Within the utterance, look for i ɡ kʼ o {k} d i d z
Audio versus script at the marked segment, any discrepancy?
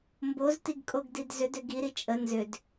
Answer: yes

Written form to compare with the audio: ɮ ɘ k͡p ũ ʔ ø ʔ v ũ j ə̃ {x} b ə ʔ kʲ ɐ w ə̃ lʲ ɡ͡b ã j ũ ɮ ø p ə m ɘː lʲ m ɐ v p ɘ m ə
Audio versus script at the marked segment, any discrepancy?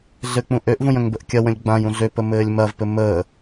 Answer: yes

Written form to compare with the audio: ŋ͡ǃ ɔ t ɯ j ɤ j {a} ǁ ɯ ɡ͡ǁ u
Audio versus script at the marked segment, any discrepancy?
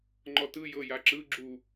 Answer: no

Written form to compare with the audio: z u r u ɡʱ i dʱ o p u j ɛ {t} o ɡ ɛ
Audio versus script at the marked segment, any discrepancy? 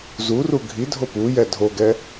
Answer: yes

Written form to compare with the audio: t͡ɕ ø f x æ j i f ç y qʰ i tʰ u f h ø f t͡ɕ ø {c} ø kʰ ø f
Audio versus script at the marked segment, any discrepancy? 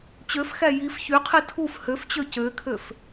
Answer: no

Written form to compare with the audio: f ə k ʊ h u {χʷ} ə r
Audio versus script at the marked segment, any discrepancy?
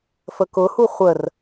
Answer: no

